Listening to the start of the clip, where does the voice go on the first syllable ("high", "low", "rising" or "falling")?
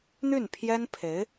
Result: falling